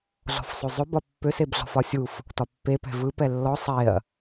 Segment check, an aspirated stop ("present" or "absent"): absent